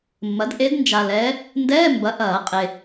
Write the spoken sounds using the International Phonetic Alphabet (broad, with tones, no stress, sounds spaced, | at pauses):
mː ɐ˩˥ d ʔ e˧˥ d n d͡ʒ a˨ l ɛː˧˥ | n d ɛː˧˥˧ m b ɐ˩˥ ʔ ɐː˨˩˦ qʼ e˨